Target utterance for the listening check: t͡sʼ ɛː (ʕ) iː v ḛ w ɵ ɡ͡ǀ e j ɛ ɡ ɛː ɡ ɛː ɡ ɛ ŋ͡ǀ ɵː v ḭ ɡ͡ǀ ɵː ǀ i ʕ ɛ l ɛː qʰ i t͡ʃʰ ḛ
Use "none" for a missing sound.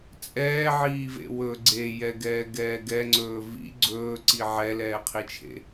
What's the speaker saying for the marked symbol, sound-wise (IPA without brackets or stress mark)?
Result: ʕ